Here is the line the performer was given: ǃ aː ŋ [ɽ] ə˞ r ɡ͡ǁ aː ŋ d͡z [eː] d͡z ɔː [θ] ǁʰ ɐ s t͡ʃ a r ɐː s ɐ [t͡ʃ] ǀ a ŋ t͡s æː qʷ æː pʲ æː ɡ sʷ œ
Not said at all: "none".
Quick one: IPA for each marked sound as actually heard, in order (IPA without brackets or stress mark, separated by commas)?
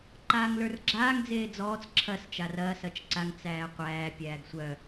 l, eː, t͡s, t͡ʃ